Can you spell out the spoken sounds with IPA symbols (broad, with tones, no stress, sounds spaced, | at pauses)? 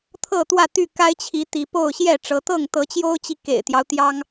t̪ʰ ɤ˥˨ t̪ w ä˥˨ t̪ y˥˨ k a˦ ɪ̯ t͡ɕʰ i˨˦ t̪ i˨˦ p o˥˨ ʊ̯ ɕ j ɛ˥˨ ʈ͡ʂ ɤ˨˦ t̪ ɤ˥˨ ŋ t̪ ɤ˨˦ t͡ɕ j o˦ ʊ̯ t͡ɕ i˨ k ḛ˨˩ ɪ̯ t̪ j ɑ˦ ʊ̯ t̪ j ɑ˦ ŋ